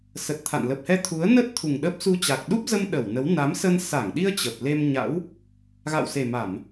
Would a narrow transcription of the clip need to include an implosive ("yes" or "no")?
yes